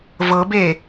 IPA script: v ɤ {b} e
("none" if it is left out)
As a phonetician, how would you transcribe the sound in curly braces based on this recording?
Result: b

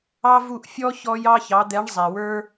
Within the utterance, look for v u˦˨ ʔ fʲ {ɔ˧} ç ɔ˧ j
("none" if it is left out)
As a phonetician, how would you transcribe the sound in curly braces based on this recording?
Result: ɔ˦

